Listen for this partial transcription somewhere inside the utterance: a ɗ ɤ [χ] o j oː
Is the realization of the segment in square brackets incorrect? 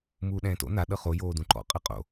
no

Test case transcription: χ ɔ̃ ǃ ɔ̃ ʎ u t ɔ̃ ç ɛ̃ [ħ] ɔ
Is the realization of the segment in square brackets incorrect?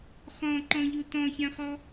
yes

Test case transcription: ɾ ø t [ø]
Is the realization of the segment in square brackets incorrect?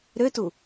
yes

